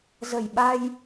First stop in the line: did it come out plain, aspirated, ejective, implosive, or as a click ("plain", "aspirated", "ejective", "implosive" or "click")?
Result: implosive